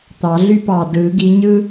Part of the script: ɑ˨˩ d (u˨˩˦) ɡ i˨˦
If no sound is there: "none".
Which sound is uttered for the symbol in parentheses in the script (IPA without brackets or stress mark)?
ɯ˨˩˦